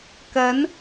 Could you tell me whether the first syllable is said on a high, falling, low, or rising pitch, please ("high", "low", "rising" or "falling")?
rising